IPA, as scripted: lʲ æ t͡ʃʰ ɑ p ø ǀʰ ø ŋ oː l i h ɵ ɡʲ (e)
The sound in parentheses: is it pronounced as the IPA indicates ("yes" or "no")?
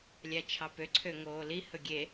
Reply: yes